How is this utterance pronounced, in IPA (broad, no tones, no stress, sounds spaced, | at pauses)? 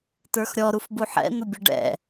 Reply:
t ə˞ x ɾʲ ɔ ɾ u f b u ħ ɛ̰ n̪ ʊ bʲ ʊ ɖ ɛ̰